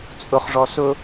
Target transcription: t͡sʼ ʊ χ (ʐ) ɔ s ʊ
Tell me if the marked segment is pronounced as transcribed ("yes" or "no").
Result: yes